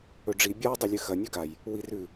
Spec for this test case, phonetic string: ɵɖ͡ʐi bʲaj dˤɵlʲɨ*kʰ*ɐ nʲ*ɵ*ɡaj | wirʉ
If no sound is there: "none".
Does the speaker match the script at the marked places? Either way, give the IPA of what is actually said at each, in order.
x, ɵ

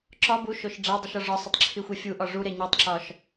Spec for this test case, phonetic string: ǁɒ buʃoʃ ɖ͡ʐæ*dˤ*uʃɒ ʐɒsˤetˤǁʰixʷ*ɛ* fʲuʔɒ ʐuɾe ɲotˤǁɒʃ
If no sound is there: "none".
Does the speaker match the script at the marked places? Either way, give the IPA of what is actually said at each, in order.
dˤ, e

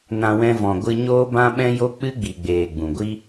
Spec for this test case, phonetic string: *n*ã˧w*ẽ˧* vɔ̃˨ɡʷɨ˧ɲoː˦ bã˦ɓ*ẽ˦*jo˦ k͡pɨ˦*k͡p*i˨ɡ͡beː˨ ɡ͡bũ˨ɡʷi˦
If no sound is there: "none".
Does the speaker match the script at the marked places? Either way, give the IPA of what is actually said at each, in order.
n, ɛ̃˧, ɛ̃˦, ɡ͡b

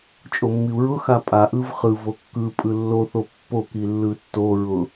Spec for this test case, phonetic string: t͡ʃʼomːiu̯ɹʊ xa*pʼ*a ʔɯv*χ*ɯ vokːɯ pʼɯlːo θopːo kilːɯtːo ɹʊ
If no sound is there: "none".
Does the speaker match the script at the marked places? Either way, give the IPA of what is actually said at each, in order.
pʼ, χ

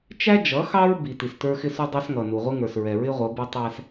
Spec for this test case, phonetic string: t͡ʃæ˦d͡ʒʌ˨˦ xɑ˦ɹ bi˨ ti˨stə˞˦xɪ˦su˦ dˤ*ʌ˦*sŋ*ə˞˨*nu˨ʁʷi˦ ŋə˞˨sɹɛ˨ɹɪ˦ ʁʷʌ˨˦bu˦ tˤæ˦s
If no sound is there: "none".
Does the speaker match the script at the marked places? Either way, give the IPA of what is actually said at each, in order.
ɑ˦, ʌ˨

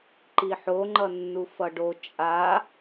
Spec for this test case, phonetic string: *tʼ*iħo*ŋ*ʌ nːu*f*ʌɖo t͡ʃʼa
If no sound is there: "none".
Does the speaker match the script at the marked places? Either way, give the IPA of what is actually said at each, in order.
ǃ, ŋ͡ǃ, f

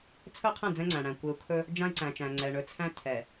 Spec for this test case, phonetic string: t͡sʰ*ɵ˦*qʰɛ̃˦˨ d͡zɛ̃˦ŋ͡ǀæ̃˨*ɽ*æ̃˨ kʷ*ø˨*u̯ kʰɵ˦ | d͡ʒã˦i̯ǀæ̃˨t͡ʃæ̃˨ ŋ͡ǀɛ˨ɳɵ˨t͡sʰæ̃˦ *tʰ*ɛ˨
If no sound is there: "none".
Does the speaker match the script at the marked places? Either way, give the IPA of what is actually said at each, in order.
ɵ˦, ɽ, e˨, tʰ

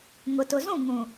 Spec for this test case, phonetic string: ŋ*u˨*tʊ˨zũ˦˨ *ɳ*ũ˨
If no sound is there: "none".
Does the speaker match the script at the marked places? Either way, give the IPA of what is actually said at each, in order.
ʊ˨, ŋ

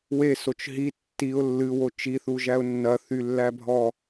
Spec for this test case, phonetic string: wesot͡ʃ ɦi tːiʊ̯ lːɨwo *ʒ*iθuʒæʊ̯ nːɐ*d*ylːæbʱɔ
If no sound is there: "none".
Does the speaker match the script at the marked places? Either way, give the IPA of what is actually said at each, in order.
t͡ʃ, θ

